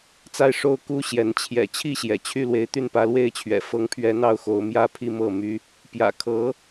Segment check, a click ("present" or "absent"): absent